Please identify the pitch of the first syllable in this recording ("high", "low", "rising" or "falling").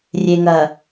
low